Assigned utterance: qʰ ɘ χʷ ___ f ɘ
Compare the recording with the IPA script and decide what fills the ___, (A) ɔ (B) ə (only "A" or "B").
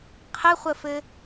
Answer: B